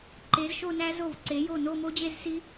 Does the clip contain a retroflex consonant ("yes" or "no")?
no